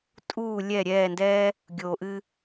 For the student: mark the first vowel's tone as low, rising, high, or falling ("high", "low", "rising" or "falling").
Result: falling